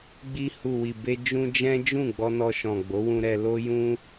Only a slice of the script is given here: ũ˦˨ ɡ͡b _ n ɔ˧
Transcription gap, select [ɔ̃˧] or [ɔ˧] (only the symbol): ɔ˧